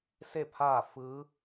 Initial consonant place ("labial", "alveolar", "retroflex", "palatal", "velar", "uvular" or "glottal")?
alveolar